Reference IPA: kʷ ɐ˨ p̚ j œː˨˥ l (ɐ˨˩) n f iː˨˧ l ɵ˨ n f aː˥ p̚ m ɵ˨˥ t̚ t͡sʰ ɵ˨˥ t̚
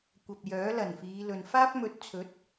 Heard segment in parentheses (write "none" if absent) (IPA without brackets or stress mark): ɐ˨˩